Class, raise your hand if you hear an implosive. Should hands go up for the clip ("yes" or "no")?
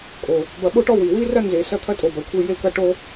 yes